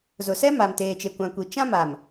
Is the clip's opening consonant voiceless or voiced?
voiced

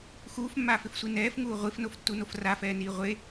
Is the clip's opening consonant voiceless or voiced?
voiceless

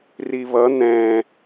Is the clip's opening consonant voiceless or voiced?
voiced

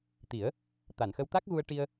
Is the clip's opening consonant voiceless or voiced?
voiceless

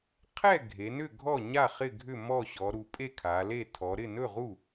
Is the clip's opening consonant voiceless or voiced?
voiceless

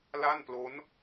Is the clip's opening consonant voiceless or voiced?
voiced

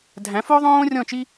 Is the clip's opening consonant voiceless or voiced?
voiced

